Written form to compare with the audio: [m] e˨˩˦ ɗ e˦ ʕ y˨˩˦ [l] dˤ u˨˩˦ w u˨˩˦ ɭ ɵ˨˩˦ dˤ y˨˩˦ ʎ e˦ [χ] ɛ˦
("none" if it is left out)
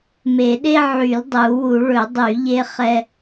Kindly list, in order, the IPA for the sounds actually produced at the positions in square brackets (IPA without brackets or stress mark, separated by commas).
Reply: m, l, χ